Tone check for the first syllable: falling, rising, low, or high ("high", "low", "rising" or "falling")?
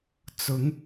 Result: rising